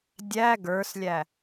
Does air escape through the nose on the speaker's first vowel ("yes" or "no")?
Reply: no